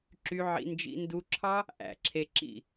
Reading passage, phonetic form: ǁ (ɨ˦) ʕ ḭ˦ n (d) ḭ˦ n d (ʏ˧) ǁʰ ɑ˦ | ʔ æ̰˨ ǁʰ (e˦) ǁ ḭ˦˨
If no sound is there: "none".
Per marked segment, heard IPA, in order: y˦, d͡ʒ, u˧, e˧

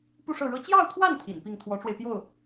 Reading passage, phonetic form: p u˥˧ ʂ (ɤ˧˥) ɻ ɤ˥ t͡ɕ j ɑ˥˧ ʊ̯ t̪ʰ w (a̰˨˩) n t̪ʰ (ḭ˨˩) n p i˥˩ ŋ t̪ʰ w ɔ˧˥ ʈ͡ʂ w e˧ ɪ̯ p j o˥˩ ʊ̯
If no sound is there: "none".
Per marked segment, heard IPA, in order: ɤ˥˩, a˥˩, ḭ˨˩

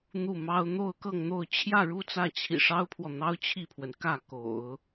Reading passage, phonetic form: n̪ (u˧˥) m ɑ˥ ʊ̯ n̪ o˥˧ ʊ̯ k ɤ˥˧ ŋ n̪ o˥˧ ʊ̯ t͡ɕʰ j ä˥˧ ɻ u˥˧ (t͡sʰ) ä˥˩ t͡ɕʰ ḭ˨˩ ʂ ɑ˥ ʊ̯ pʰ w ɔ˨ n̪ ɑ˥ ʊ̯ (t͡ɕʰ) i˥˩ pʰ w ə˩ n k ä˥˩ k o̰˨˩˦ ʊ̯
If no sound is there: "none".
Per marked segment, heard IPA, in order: u˥˩, t͡s, t͡ɕʰ

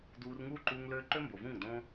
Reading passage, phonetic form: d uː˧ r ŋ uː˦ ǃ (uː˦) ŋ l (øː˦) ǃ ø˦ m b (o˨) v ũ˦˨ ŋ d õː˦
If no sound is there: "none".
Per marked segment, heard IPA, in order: uː˧, øː˦, o˨

